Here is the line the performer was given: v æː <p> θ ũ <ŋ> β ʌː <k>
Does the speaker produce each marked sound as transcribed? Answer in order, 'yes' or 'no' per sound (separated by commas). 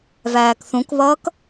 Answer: no, no, yes